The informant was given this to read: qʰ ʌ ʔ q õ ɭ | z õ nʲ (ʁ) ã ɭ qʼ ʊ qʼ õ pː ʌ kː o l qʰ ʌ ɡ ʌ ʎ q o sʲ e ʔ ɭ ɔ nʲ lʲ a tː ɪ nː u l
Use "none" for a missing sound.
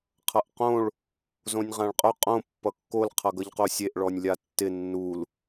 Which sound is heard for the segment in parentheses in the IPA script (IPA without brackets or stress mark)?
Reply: ʁ